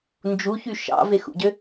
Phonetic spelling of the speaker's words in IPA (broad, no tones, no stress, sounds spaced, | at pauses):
n d͡ʒ u ç y ʃ ɑ̰ v e x ṵ ɟ ø